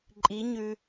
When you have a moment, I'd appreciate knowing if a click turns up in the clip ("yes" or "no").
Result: yes